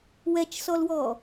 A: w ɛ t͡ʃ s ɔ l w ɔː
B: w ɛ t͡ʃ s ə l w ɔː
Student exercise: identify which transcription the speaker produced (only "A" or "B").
A